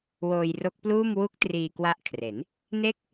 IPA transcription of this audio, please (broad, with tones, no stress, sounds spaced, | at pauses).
w oː˧ j r o˦˥ k̚ p l uː˥˩ m w u˦˥ k̚ t r iː˧ k w a˦˥ ʔ kʰ r e˩˦ n | n e˥˩ k̚